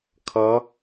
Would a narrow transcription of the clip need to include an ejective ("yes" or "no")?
no